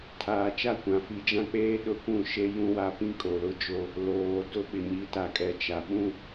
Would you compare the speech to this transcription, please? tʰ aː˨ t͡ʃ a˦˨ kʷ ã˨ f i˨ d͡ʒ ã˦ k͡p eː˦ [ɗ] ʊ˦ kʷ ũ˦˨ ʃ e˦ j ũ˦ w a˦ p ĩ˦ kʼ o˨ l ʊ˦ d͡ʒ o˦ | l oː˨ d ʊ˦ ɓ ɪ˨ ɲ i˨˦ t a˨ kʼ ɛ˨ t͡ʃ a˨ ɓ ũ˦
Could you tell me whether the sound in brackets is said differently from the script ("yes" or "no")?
no